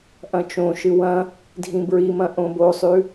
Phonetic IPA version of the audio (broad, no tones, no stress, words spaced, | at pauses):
ʔɐ̃t͡ʃõʃɨ wɐ̃ | dʱĩbɹimɐ̃ ʔõbosˤʉ